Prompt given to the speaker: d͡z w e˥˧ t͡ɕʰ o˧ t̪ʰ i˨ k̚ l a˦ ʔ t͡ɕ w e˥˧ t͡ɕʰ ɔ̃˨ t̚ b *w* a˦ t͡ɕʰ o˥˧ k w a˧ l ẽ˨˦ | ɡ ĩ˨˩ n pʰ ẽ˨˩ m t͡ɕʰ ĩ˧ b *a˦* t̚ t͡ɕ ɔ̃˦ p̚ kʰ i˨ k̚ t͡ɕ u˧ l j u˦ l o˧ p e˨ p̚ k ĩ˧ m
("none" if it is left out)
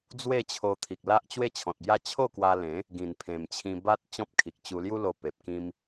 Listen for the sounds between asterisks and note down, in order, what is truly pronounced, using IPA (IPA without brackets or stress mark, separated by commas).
j, a˦